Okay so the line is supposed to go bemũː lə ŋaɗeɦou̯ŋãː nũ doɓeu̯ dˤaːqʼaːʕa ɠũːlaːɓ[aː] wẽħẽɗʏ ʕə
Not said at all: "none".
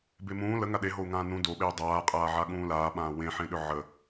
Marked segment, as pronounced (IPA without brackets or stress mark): ãː